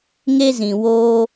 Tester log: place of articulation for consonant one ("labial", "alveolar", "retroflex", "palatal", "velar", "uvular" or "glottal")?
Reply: velar